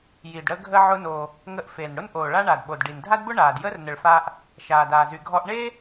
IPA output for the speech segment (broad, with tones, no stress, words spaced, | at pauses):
ji˩dɽə˧ɡʱə˧ ʕʊ˧noː˩ | ŋə˧ʔfeː˩nɽʊ˥n ʔoː˩ɭa˧ɳa˩dɓo˩d ɖi˩ndʱa˥dbʊ˥ɳaː˩d jəː˥rnə˩ɭfaː˧ʔ | ʃaː˩daː˩zy˩ ɡʱɔ˧ʔ ɳeː˥